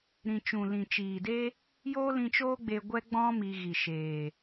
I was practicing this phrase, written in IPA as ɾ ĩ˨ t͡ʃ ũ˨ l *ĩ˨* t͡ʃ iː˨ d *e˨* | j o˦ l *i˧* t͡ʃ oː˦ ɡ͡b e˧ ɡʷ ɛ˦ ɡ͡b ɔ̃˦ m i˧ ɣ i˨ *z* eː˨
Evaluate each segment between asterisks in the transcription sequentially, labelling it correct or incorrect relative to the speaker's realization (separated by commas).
correct, incorrect, incorrect, incorrect